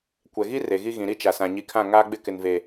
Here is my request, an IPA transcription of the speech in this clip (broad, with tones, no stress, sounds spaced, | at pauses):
kʷ ɛ˨ ɣ i˦ r e˨ ɣ i˦ ɣ ĩ˨ ɾ i˦ t͡ʃ a˨ s ã˨ ɲ i˨ kʰ ã˦˨ ŋ aː˦ ɡ͡b ɪ˦ k ɪ˨ n v e˨